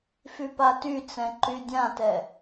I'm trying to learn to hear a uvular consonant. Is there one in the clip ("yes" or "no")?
no